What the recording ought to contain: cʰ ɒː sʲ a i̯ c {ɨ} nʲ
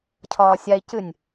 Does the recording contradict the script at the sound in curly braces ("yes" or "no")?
no